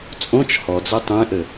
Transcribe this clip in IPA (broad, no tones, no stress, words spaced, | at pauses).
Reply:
t͡sʼõt͡ʃ hɔd͡ze tˤẽʔɘ